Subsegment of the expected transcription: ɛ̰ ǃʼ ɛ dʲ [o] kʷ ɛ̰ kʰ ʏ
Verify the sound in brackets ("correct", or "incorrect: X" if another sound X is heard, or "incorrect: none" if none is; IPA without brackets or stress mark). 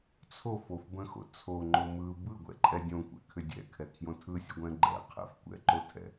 incorrect: õ